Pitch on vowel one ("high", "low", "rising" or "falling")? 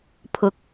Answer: rising